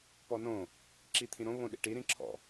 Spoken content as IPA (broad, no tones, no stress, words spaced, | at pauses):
pɔnõ | ǁit̪ʰĩɾõ βõɗḭʈi ɾĩǁʰɔ̰